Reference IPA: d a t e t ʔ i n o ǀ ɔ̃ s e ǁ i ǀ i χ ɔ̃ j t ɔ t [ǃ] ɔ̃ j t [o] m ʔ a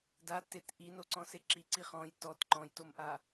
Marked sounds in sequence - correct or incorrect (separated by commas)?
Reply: correct, correct